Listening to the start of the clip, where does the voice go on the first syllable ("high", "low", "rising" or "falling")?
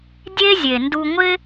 high